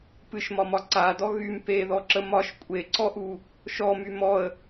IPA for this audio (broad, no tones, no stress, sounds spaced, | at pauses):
p ɨ ʃ m ɒ m ɒ ǀ a d ɔ ɣ y m p e ð ɔ ǁ ə m ɒ ʃ kʷʼ e ǀ ɔ ʔ u | ʃ ɔ m y m ɔ ə̯